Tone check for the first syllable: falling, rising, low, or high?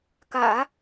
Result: low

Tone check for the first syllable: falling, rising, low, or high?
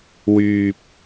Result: low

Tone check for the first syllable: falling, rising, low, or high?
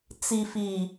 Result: low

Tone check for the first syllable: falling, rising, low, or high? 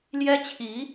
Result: high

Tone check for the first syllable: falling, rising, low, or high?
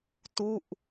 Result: falling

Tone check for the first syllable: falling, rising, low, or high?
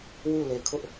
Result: falling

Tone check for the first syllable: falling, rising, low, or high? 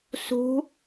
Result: rising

